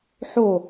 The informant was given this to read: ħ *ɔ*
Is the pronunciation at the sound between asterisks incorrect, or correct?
incorrect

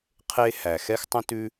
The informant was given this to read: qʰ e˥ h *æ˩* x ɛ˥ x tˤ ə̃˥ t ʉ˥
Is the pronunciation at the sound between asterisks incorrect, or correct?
correct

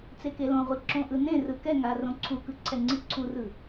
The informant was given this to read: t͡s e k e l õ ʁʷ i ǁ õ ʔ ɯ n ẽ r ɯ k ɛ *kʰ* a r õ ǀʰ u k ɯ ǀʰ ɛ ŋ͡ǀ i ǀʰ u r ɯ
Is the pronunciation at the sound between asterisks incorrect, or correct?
incorrect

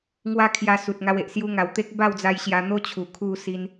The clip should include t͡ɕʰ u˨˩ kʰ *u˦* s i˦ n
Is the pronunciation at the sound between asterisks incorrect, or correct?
incorrect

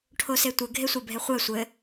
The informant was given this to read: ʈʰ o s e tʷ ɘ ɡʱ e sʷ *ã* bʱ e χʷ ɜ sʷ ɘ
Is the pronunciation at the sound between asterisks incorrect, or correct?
incorrect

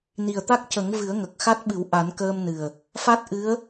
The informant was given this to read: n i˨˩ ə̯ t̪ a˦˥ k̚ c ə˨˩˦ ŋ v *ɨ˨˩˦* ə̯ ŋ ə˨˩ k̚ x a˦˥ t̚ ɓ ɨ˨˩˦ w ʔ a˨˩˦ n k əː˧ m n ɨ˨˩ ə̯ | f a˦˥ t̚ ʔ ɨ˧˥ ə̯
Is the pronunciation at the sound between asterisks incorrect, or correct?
correct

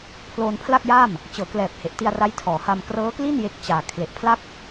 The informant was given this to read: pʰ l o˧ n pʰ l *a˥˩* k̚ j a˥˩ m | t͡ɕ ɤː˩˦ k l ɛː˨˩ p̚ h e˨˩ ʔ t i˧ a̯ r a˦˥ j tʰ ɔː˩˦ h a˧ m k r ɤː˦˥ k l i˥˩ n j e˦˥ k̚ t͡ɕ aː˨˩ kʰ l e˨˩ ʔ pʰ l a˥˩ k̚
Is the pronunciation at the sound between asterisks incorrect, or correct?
correct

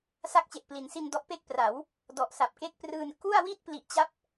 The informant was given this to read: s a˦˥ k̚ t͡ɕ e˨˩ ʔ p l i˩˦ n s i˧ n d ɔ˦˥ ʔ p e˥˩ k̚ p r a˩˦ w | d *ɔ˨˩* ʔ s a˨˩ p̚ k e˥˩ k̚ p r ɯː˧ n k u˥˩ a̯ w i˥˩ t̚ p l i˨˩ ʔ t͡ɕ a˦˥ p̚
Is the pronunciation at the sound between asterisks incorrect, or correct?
correct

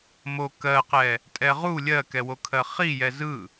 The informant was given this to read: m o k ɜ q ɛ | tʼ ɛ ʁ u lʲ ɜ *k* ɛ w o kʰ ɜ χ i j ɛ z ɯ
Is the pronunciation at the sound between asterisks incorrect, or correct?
correct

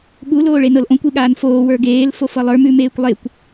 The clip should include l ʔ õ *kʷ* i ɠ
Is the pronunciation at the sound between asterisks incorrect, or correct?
correct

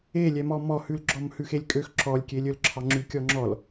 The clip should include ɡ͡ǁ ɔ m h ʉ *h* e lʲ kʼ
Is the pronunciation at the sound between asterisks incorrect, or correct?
incorrect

